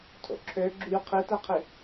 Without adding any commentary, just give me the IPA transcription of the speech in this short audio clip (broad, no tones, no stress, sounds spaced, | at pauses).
tʰ o̰ ǁʰ ø ɡ͡ǁ y qʰ i t æ qʰ i